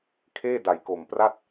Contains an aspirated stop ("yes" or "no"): yes